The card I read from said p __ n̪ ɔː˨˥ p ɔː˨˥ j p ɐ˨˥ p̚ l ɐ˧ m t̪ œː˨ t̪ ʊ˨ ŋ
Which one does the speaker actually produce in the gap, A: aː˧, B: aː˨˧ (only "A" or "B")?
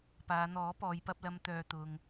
B